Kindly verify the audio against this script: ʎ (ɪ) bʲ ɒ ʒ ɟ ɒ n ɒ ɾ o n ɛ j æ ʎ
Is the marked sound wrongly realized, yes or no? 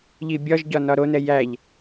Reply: yes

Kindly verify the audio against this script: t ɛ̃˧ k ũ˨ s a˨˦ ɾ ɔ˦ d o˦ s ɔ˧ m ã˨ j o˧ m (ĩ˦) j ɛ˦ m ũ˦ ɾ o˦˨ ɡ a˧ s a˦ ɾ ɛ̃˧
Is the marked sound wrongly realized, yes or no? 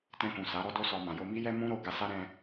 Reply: yes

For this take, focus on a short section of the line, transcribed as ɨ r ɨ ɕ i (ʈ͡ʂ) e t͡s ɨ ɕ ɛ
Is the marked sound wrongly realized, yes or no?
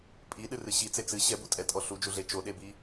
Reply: yes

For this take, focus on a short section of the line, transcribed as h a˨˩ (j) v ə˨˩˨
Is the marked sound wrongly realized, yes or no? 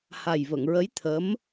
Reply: no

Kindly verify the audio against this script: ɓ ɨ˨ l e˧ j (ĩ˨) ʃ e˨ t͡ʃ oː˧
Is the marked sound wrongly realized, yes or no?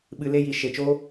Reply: yes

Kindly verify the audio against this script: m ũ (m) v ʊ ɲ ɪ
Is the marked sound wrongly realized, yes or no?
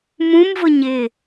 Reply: no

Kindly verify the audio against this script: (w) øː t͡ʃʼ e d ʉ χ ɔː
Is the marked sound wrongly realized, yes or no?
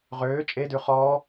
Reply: yes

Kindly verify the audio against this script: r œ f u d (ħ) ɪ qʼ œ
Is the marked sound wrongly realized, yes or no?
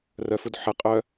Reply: no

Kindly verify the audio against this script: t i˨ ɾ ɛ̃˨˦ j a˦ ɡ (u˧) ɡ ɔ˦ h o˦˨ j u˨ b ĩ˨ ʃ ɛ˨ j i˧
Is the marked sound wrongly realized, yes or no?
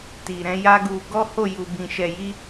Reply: no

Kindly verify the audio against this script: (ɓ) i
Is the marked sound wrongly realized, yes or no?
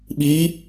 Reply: no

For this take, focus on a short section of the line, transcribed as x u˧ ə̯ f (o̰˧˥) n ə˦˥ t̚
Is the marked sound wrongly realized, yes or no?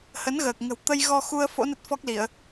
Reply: no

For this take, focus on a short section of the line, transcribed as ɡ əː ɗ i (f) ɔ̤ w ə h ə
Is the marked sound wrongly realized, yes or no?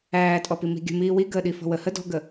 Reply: no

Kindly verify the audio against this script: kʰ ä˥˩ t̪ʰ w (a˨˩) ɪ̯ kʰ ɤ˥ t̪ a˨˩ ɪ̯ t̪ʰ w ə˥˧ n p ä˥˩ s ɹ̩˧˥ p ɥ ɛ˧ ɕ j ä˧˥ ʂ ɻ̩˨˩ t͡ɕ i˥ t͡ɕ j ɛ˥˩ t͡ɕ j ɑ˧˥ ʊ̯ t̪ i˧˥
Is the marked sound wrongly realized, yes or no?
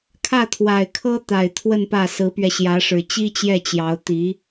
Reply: no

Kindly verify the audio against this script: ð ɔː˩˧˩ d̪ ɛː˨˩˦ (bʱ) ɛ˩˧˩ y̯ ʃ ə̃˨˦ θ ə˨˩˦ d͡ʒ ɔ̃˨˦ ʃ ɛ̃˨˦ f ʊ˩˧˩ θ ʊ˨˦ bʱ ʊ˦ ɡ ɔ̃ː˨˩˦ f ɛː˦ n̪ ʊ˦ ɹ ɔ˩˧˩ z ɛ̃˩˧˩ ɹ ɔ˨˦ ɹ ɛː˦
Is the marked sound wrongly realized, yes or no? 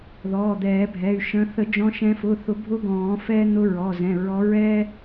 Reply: no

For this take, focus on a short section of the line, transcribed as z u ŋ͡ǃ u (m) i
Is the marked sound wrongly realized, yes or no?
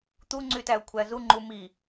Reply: no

